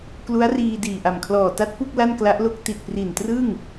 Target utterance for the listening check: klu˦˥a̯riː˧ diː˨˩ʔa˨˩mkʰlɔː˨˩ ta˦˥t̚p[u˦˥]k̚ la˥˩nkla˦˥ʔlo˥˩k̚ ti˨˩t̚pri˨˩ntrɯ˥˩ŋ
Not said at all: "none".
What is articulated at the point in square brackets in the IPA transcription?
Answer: u˥˩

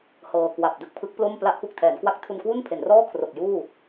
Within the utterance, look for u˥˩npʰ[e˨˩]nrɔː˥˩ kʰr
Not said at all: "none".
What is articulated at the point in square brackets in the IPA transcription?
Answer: e˩˦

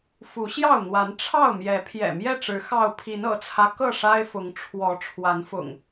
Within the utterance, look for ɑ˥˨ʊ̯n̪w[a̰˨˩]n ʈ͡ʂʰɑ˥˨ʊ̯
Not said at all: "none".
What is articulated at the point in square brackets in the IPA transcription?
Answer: a˨˦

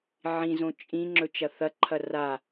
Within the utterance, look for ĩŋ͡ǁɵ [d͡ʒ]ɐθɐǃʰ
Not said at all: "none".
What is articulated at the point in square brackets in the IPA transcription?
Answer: t͡ʃ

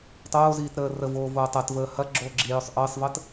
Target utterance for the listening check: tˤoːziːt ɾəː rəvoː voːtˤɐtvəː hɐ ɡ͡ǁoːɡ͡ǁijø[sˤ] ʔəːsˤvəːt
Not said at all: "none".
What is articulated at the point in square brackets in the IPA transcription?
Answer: sˤ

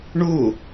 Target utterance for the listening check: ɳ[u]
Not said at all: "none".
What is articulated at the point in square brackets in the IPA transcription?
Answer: u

